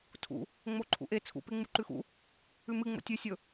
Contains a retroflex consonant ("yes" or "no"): no